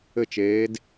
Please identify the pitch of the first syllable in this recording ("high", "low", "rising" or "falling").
falling